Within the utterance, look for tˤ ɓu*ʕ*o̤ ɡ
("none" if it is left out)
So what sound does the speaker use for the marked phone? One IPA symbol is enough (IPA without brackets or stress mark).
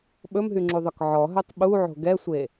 ʕ